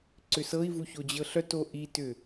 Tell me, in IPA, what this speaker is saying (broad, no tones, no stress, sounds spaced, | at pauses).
ǀ ʏ s ɤ i̯ v u ç o d͡ʑ ɤ ɬ œ t o ʔ i t ʏ